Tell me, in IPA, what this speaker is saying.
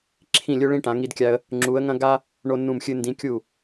ǁʰ ĩ˥˨ lʲ ɵ˥ ɭ ĩ˥ ʈ ã˧˥ ŋ i˥ d kʲ a˥ ə̯ | ŋ͡ǁ u˧˥ ə̯ ŋ ɐ̃˥ ɡ a˥ | ɳ o˥ nː ũ˥˨ m xʲ ɨ˥ n d ĩ˧˥ kʲ u˥˨

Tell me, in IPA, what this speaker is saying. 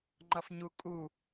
ŋ͡ǃ ʌ f ɲ u kʼ u

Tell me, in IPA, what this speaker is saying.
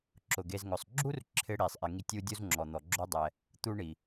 ǁ ʊ˩ ɡ e˨ z ŋ ʊ˩ sˤ ɡ͡ǁ u˥ r ǁʰ ɪ˦ ɽ i˩ sˤ ʔ ɪ˨ ŋ i˦ tʲ u˥ dʲ u˥ z ŋ͡ǁ ɔ˩ n̪ ɔ˩ ɡ͡ǁ o˦ dˤ ɛ˨ | t̪ u˥ ɳ i˩

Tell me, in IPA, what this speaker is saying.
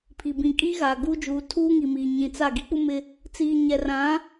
pʰ i˨ b ĩ˨ kʼ iː˦ ɣ aː˨ ɡ uː˦ d͡ʒ uː˨˦ tʰ uː˦ ŋ i˨ m iː˨ ɲ ĩ˨ t͡s a˦˨ ɡ i˦ k͡p u˦ m ɪ˦ | t͡s iː˨ ɲ ɛ˨ r ã˨˦

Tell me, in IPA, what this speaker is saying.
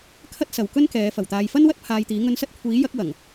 kʰ ɐ˥ t̚ s ɐ˨ w k ɵ˥ n k ɛː˨˧ f ɐ˨˩ w t̪ aː˨ j f ɐ˥ n w ɐ˥ t̚ pʰ aː˧ j t̪ iː˨˥ ŋ ɵ˧ n s ɐ˥ t̚ kʷʰ iː˨˥ j ɐ˨˥ k̚ w ɐ˨˩ ŋ

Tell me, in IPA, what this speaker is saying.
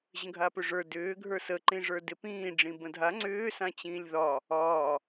ʑ ə̃ ɡʱ a p ʏ ʐ ə˞ d ʏː ɡʱ ə˞ s ə ǃ ĩ ʐ ə˞ d ɪ p ĩː ɖ͡ʐ ĩ b ə̃ dʱ a ŋ͡ǀ ʏː s ã t͡ɕ ĩː lʲ ð ɒ | ɒː

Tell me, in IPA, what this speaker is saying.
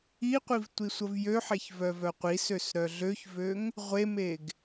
i qʷ i v tʷ i sʷ ə v j ø ħ e ç v œ v œ qʷ i s ø s ɾ œ ɮ ø ç v ø ŋ | ʁʷ e m e ɡ

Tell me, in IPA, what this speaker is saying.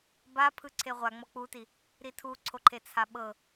b a pʰ ɯ ǀʰ e ʁʷ a ŋ͡m ɔ k͡p u t i | ɾ i tʰ u ǀʰ o ǃʰ e t͡sʰ a ɓ ɤ

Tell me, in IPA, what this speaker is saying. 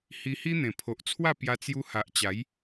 h i˧ h i˦ n̪ ẽ˨˩ pʰ o˨ ʔ t͡sʰ w a˥˧ p j a˧ t͡s j u˧ h a˨ ʔ t͡ɕ a˨˦ j

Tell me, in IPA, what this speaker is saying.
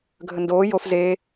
ɡʱ ə n d oː j o f z eː

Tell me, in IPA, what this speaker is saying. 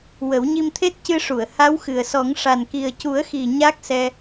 w ə˨˩˦ w ɲ i˧ m t̪ʰ e˦˥ t̚ c ɨ˧ ʂ u˨˩˨ ə̯ h a˧˥ w x ɨ˨˩ ə̯ s ɔ˨˩˦ ŋ ʂ a˨˩ n k i˨˩ ə̯ c u˨˩˦ ə̯ x i˨˩ ɲ a˦˥ k̚ s ɛ˧

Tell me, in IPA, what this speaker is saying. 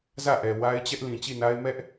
z ä˦˨ ʔ ɛ˨ w a˦ ɪ̯ t͡ɕ ɛ˦ ʔ l ĩ˨ t͡ɕ i˦˨ n a˦ ɪ̯ m ɛ˦ ʔ

